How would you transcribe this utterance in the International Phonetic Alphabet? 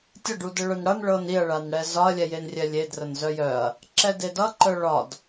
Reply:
tʲʌ ɖudəɭœnɽʌn ɭɤniɐ̯ɭan ɽɛzɒɐ̯lʲɛjen rʲɛlʲedrən zœjœɐ̯ | ǁɛdedʌ ǃœɭɒd

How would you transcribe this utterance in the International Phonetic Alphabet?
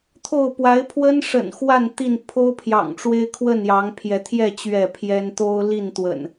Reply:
t̪ʰo˥˨ʊ̯ pwa˨˦ɪ̯pʰwə˦nʂə̰˨˩n xwa˥˨n t̪i˥˨n pʰo˦ʊ̯pʰjɑ̰˨˩ŋʈ͡ʂwe˦ɪ̯ kʰwə˥˨njɑ˨˦ŋpʰjɛ˨˦t̪ʰjɛ˥˨ t͡ɕɥɛ˥˨pʰjɛ˦n t̪o˦ʊ̯li˥˨nt̪wə̰˨˩n

